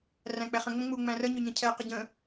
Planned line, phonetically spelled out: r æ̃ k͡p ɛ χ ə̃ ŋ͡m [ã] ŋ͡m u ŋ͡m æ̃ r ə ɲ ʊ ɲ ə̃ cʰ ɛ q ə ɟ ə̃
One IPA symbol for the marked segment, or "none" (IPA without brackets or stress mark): ə̃